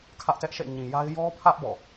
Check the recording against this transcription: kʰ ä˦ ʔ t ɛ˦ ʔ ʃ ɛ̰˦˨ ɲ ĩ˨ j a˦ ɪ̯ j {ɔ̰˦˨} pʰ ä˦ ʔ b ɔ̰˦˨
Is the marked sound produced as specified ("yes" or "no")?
no